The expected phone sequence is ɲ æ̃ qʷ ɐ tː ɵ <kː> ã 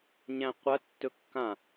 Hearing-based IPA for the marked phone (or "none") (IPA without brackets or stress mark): kː